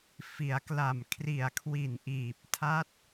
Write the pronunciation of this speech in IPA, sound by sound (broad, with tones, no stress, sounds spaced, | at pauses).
f i˩˦ a̯ k l a˨˩ m kʰ r i˨˩ a̯ kʰ w i˨˩ n ʔ iː˨˩ p̚ tʰ a˦˥ t̚